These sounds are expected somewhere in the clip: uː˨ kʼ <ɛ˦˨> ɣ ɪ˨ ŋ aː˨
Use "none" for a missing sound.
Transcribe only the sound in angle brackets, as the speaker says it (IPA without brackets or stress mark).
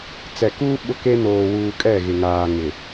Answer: ɛ˦˨